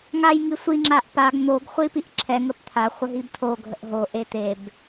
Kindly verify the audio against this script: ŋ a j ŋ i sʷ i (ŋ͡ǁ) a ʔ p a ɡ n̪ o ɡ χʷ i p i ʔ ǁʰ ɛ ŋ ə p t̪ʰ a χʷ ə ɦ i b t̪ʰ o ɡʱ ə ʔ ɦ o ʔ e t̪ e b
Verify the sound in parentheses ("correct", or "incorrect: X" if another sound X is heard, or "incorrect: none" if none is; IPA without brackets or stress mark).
correct